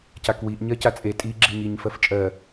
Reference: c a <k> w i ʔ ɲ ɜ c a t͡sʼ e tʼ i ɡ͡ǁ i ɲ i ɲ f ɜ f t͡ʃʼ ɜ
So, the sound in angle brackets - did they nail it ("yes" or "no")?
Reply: yes